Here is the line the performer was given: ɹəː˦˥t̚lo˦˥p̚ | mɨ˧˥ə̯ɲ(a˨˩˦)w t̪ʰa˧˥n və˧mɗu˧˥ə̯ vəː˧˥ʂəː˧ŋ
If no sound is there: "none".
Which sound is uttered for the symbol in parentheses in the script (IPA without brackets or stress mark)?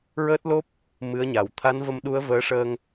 a˨˩˨